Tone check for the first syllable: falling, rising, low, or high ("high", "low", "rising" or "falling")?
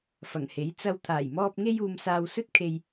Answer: low